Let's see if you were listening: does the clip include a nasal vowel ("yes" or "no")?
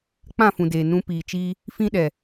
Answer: yes